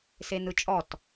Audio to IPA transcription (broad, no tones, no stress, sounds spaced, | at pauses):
s e n ɯ t͡ʃʼ ɔ t